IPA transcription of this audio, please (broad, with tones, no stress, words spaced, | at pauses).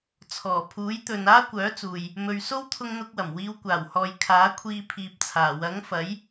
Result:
t͡sʰɔː˨˩pʰuː˨˥jt̪ɵ˨n aː˥kʷœː˨˥t͡suː˨j | mɵ˨ɥ so˥wt̪ʰʊ˧ŋn̪ʊ˧k̚wɐ˨˩m wiː˨˧wkʷaː˨˩whɔː˨j kʰaː˨˥kʷʰiː˧pʰiː˨p̚t͡sʰaː˨˩ wɐ˨˥ŋfɐ˨˥j